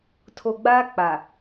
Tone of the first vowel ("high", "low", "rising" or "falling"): low